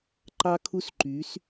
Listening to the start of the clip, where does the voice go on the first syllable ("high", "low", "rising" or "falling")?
high